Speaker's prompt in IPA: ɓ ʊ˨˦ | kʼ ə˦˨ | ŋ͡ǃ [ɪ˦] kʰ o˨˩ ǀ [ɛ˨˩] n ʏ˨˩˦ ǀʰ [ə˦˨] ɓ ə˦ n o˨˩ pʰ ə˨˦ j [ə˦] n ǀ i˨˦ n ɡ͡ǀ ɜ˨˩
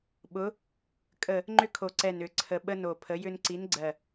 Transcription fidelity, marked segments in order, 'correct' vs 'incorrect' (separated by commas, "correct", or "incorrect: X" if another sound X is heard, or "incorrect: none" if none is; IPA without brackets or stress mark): incorrect: ʏ˦, correct, incorrect: ə˨˩, incorrect: ʏ˦